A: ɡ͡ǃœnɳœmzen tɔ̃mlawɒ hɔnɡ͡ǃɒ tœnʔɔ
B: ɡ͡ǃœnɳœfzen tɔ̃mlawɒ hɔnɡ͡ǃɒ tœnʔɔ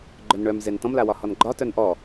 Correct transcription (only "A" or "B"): A